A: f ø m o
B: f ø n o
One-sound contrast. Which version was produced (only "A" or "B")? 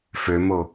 A